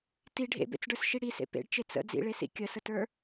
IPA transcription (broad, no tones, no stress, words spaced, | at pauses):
ti ɖʱḛbḛt͡sɖə˞sʃi ɽisḛ pḛɖt͡ʃe t͡sə̰ d͡zḭɭesḭ kʲəsətə˞